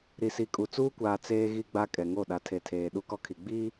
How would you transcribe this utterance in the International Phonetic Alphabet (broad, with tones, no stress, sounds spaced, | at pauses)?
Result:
ɾ i˨ s i˨ kʼ u˨ t͡s uː˦ kʷ aː˨ t͡s eː˨ ɣ i˨ ɡ͡b a˦ kʼ ɛ˨ ŋ o˦˨ ɗ a˨ tʰ e˨ tʰ eː˨ ɗ u˦ k ɔ˦ kʰ i˨ ɡ͡b iː˦